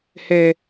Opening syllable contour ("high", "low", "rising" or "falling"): high